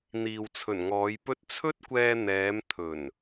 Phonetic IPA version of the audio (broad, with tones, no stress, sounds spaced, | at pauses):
n̪ iː˨ w t͡sʰ ɵ˨˩ n ŋ ɔː˨˧ j p ɵ˥ t̚ t͡sʰ ɵ˥ t̚ kʷ ɛː˧ n̪ ɛː˨˧ m t̪ʰ ɵ˨˩ n